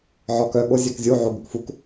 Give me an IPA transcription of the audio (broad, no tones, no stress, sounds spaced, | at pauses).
ʕ ɔ k œ ɠ o zʲ æ k zʲ u ʕ o ɡ ɵ k f u k